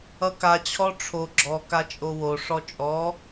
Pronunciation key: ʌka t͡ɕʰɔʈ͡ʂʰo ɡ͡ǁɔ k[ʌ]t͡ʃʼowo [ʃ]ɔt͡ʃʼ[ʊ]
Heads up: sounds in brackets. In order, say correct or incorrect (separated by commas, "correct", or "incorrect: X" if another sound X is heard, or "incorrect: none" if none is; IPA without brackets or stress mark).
incorrect: a, incorrect: ʂ, incorrect: ɔ